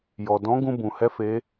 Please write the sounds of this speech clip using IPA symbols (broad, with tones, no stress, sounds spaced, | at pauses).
j ɔ˩ d ɔ̃˧˥ ɡ ũ˧ b ũ˩ h ɛ˧˥ f e˧˥